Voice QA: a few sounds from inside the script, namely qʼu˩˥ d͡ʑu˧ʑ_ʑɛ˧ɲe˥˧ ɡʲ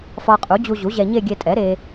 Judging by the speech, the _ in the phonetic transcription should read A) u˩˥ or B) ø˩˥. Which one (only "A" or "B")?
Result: A